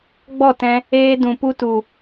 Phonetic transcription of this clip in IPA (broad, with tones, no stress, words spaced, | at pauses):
ɡ͡bɔ˦˨tɛ̃˧ | eː˧dũ˨pu˧tu˨